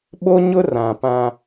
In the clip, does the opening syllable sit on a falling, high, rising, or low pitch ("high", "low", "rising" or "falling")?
high